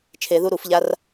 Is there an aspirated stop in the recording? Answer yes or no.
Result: yes